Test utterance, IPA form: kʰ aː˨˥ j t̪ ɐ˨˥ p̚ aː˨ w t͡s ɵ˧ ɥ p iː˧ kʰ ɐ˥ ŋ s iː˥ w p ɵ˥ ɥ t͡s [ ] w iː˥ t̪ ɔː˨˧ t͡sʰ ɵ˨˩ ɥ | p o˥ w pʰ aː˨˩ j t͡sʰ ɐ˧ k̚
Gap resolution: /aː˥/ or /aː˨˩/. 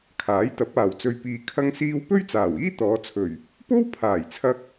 aː˨˩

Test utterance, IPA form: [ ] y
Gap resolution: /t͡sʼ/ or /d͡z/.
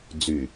d͡z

